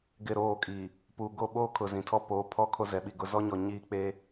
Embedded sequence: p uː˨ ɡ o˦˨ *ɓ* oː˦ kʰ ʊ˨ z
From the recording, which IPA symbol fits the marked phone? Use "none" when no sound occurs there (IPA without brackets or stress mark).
ɓ